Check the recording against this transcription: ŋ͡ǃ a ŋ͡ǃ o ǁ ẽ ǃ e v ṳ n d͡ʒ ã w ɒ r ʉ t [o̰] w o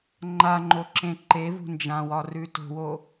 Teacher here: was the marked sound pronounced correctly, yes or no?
no